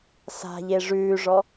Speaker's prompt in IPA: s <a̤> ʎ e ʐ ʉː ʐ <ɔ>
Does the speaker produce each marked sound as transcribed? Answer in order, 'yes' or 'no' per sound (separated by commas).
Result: yes, yes